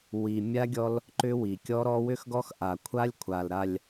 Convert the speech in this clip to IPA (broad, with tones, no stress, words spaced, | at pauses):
wi˨mʲa˦ɡʲɔ˦l | ǃʏ˦wi˨ kʲɔ˦ɾɔ˦ wʏ˦xɡɔ˦x ʔa˨kʷʰa˦lʲkʷʰa˨lɾa˨lʲ